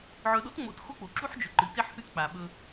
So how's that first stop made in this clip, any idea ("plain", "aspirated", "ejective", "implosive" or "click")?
implosive